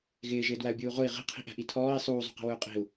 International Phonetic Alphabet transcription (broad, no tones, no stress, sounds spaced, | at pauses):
ɣ ɪː ʒ ɪː d w æ u̯ bʲ uː ʁ ʊ i̯ ʁ i̤ qʰ i̤ ʔ æ̤ ʔ i tʰ ɔː i̯ sˤ uː zˤ ṳ q i̤ w ʊː qʼ i̤ u̯